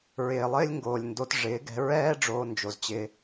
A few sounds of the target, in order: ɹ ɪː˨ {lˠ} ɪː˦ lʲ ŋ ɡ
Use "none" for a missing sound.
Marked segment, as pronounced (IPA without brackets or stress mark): lˠ